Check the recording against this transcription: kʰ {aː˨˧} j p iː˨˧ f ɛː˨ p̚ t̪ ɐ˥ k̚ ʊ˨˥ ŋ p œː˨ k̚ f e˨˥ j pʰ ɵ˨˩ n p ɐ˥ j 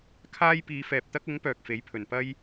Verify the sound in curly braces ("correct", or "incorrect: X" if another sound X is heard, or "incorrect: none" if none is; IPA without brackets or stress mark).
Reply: incorrect: aː˥